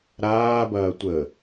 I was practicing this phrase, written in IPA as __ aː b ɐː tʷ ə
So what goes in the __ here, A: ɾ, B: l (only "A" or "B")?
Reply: A